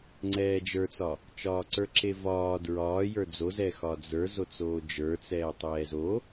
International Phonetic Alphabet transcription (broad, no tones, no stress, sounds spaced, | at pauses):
ŋ͡ǀ ɛː d͡ʒ ə˞ t͡s ɒ | t͡ʃ ɒː ǀ ə˞ ǁ e v ɒː d ɹ ɒː j ə˞ d͡z o z ɛ x ɒ d͡z ə˞ z o t͡s oː d͡ʒ ə˞ t͡s ɛː tˤ ɛː z o